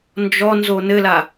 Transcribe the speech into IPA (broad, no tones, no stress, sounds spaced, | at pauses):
n d͡ʒ ɔ n z o n ɘ l a